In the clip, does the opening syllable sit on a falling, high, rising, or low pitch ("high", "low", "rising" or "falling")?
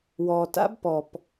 low